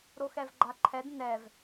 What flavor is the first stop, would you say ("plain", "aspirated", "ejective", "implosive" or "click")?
click